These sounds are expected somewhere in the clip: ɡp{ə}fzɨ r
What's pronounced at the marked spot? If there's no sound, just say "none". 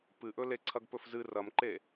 ɵ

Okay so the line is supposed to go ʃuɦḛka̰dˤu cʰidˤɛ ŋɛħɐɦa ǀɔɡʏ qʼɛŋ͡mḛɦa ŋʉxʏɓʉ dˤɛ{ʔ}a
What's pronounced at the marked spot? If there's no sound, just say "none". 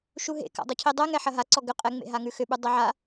ʕ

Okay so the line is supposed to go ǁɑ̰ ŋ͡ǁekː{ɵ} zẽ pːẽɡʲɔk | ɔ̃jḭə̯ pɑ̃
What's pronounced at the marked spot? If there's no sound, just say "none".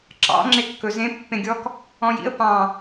ɵ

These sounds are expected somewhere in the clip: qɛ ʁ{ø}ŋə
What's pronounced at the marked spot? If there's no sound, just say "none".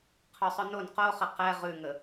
ʉ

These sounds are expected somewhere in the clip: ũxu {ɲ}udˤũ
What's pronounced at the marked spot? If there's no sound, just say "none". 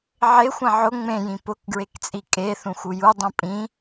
j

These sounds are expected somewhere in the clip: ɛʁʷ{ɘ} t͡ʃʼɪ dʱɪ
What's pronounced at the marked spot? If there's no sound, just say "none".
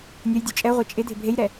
e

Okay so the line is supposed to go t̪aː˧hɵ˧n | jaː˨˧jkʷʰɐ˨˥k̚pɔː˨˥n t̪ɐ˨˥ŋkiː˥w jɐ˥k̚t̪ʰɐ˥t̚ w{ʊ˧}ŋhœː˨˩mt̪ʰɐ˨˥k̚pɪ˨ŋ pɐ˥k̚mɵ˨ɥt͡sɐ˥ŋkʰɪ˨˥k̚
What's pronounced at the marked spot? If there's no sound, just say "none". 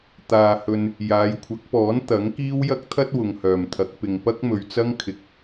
ʊ˨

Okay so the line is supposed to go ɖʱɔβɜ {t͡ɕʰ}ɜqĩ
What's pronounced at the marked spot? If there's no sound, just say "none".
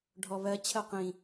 t͡ɕʰ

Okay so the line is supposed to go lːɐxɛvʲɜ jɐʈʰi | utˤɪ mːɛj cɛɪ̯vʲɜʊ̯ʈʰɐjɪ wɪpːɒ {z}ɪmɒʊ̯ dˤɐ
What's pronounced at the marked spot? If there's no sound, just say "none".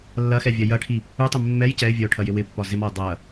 z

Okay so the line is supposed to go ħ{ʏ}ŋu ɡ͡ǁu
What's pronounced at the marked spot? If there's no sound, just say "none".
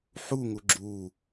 u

